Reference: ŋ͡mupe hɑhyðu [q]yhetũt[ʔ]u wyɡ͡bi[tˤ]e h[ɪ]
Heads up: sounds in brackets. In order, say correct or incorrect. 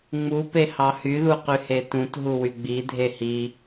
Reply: correct, incorrect, incorrect, incorrect

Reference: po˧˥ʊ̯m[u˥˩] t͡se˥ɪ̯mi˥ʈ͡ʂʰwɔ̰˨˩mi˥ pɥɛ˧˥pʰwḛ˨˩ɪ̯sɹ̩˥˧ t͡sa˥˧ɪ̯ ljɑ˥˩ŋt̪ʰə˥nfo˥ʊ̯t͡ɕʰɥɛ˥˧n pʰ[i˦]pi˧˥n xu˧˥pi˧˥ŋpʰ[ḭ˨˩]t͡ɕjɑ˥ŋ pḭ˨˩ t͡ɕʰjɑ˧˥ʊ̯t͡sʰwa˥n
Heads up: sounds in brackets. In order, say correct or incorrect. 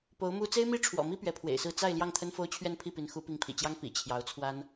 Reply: incorrect, incorrect, correct

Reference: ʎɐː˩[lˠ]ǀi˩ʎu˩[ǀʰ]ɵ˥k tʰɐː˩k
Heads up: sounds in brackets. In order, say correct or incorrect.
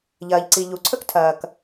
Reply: incorrect, correct

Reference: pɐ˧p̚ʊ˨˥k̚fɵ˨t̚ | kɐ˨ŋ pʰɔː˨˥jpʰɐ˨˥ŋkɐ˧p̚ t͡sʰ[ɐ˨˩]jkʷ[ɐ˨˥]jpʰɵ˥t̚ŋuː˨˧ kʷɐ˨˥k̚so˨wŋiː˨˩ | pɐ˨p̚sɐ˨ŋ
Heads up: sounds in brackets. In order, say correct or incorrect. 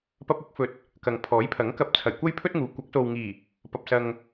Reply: correct, incorrect

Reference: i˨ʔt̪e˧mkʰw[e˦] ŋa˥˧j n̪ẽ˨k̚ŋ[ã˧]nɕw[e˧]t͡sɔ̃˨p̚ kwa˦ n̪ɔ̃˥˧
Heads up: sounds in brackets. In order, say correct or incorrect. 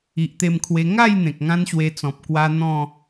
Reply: incorrect, incorrect, correct

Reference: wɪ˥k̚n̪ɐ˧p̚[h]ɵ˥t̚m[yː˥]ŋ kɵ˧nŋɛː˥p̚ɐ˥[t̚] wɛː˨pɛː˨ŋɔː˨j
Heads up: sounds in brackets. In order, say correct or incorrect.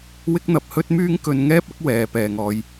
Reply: correct, correct, incorrect

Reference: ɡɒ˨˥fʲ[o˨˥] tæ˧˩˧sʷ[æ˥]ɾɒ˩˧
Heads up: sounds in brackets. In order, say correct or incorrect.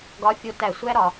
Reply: correct, correct

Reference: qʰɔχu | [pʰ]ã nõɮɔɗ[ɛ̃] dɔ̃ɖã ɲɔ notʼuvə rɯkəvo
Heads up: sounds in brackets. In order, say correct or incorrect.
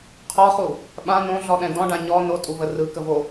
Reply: incorrect, correct

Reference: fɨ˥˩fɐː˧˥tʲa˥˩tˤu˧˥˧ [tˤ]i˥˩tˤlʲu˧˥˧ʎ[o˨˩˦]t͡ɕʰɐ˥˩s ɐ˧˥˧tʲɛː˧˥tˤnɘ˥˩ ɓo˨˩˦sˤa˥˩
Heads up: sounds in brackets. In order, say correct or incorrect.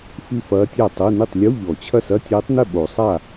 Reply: incorrect, incorrect

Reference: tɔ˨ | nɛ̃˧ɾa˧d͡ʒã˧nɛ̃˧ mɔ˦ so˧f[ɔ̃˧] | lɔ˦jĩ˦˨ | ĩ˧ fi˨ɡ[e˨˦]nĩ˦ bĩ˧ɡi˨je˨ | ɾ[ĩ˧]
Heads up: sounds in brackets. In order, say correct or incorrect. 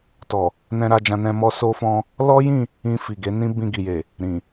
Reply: correct, correct, incorrect

